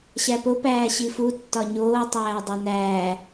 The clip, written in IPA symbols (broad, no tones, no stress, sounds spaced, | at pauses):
ɕ æ p o p æː ɕ i f u tː ɒ ɲ oː tˤ æː dˤ o n æː